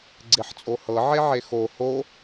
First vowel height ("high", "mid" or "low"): mid